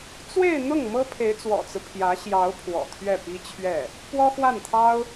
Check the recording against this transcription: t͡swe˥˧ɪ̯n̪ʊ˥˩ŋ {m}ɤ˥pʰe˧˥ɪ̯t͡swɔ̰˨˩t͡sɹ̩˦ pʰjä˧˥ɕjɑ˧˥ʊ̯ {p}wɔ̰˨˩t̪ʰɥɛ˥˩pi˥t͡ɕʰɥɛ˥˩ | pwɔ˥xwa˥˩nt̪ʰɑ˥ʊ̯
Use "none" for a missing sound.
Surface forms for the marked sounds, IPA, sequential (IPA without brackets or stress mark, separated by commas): m, pʰ